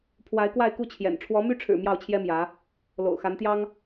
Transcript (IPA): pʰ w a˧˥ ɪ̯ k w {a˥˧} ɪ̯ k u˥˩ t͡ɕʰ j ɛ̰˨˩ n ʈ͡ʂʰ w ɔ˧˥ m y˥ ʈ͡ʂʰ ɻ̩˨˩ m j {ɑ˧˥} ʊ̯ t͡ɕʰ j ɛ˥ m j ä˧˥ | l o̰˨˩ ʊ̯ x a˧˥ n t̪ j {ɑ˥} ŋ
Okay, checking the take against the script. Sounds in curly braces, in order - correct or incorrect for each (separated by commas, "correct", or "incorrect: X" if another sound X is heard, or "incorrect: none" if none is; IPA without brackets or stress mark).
correct, incorrect: ɑ˥˩, correct